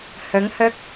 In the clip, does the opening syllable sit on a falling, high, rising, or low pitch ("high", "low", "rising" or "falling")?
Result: rising